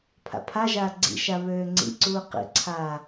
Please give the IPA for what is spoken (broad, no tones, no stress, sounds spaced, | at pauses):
pʰ a̰ pʰ a ʒ aː ɡ͡ǀ ḭ ʃ a β øː ŋ͡ǀ ḭ ǀ uː q ḭ ǀʰ aː